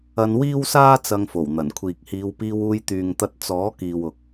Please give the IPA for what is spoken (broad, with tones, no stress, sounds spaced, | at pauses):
ɐ˧ n w iː˥ w s aː˥ t͡s ɐ˧ ŋ f o˨˩ w n̪ ɐ˨˩ n kʷʰ iː˨ k̚ h iː˨˧ w p iː˧ w uː˧ j t̪ yː˨ ŋ t̪ ɐ˧ t̚ t͡s ɔː˨˥ k iː˨ w ʊ˨ k̚